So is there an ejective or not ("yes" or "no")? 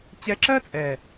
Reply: yes